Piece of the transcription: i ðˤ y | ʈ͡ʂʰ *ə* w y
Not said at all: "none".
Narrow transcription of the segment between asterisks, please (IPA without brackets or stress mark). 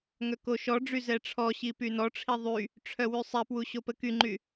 œ